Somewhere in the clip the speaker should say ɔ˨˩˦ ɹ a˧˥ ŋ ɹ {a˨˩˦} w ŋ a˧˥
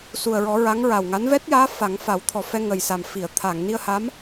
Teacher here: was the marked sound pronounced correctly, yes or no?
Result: no